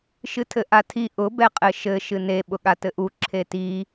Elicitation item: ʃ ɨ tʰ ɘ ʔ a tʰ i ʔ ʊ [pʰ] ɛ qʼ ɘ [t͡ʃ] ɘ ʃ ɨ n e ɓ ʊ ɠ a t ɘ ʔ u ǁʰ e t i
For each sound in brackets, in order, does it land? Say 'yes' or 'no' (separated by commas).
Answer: no, no